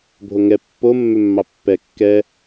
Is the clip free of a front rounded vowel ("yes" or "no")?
no